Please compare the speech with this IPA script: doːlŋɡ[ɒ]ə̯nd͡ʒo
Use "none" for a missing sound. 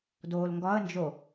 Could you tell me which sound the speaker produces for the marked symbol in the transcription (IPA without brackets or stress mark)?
ɒ